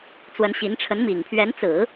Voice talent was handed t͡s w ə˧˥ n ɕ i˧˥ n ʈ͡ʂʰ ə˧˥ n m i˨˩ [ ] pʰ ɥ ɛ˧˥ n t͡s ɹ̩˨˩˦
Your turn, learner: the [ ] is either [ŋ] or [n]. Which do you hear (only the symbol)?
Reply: ŋ